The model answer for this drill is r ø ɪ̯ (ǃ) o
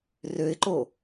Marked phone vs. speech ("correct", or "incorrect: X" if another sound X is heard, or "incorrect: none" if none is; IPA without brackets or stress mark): correct